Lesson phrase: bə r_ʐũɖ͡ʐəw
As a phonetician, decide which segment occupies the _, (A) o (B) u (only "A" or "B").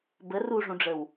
B